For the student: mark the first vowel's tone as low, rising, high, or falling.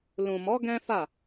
low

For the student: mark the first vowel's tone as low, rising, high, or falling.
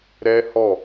high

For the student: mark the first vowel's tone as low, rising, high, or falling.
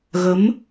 rising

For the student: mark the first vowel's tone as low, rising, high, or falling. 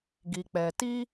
low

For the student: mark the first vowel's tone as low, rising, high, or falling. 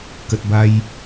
low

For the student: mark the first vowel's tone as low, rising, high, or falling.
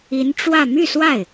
rising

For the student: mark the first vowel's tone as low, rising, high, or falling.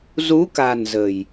rising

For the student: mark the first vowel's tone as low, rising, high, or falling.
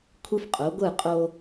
high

